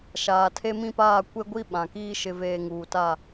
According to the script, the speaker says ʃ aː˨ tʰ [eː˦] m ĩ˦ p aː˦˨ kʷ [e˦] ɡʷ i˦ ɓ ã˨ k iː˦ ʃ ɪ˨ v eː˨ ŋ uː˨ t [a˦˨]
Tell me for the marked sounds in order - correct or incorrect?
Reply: incorrect: e˦, correct, correct

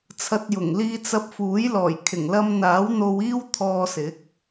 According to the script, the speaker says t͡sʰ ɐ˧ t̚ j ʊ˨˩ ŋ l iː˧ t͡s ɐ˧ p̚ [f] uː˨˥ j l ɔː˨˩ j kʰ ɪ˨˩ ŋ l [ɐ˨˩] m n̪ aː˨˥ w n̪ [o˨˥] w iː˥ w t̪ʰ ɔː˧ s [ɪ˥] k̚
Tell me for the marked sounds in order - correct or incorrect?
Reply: correct, incorrect: ɐ˧, incorrect: o˧, incorrect: ɪ˨˥

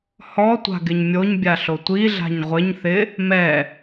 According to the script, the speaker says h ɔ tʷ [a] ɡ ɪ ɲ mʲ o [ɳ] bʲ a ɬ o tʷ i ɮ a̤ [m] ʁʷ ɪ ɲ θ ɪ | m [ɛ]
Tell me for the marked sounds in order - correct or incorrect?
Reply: incorrect: a̤, incorrect: ɲ, incorrect: ɲ, correct

